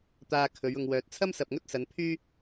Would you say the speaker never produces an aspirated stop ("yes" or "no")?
no